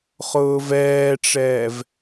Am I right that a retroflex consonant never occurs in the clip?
no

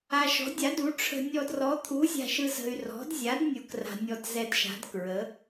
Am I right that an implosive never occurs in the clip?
yes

